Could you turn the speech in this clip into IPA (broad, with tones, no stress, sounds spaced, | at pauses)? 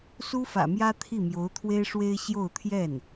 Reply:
s u˥ f ä̰˨˩ m j ä˥ t̪ʰ i˥˩ m j o˧˥ ʊ̯ t̪ʰ w e˥ ɪ̯ ʂ w e˥ ɪ̯ ɕ j o˥˧ ʊ̯ t̪ʰ j ɛ˥˩ n